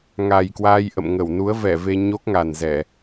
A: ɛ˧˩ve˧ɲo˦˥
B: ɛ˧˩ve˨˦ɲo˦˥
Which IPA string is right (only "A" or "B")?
A